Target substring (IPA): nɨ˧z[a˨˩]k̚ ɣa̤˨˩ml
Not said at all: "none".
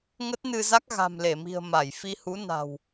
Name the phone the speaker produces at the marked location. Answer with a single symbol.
a˦˥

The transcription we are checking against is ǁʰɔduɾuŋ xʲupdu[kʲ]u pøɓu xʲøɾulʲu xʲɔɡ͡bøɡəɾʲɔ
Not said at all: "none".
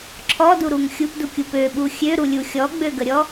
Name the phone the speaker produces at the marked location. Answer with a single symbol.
kʲ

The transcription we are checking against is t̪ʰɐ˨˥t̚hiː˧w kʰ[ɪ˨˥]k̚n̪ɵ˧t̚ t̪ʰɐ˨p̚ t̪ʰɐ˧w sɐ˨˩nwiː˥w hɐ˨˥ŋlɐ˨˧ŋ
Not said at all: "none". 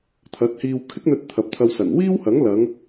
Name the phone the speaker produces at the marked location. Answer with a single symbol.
ɪ˥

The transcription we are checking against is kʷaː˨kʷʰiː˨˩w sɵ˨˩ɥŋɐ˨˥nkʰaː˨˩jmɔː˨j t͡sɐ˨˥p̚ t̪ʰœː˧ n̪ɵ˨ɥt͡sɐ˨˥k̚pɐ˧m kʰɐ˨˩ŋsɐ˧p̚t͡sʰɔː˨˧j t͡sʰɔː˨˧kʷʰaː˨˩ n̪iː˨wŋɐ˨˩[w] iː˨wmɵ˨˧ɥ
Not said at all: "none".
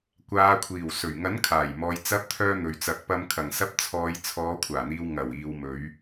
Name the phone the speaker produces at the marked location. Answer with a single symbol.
w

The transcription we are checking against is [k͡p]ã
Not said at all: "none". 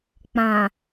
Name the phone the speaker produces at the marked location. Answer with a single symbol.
k͡p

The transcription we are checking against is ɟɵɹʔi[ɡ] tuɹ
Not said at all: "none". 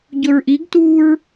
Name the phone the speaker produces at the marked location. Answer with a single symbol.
ɡ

